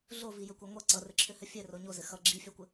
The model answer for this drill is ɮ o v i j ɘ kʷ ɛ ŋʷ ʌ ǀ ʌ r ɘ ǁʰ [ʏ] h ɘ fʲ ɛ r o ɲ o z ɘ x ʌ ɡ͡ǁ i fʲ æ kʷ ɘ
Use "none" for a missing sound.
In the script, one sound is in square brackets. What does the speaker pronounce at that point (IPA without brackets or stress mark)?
ʏ